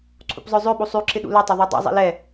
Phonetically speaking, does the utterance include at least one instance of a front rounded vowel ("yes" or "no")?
yes